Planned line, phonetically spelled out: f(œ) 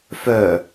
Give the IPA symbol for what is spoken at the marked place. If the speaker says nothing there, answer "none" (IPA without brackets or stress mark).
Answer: œ